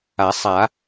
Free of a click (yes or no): yes